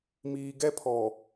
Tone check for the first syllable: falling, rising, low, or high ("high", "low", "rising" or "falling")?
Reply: low